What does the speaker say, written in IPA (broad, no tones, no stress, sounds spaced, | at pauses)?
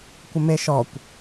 kʷ ə m e ʃ ɔ kʷ